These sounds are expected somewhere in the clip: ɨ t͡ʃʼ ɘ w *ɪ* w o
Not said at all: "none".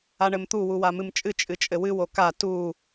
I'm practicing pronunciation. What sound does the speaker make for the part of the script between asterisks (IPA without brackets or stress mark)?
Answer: ɨ